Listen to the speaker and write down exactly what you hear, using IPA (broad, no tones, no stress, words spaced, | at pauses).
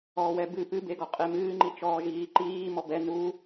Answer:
ɔːwɛbɨ pɨbeɡɔ qʼemɨːŋ͡ǃi t͡ʃɔːʒiːǃiː mɔbɛ nu